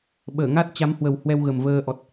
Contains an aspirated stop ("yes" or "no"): no